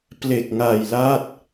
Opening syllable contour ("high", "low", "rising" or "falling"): low